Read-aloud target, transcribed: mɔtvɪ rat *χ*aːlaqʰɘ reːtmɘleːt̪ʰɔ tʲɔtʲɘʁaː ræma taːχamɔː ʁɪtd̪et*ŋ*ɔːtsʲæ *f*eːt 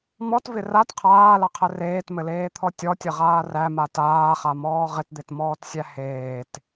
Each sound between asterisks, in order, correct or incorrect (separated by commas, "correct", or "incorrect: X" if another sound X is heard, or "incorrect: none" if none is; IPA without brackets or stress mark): incorrect: qʰ, incorrect: m, incorrect: h